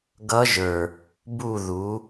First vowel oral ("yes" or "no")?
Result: yes